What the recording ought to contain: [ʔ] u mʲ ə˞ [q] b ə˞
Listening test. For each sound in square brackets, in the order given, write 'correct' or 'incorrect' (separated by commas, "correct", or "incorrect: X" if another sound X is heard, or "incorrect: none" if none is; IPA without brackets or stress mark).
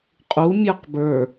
incorrect: qʼ, correct